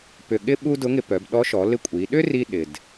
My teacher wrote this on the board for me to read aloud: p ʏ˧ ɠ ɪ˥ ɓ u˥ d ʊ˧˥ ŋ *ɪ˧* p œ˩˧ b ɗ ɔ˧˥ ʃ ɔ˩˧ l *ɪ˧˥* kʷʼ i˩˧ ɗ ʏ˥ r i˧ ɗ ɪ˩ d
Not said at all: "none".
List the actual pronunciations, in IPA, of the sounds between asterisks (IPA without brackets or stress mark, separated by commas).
ɪ˧, ɪ˧˥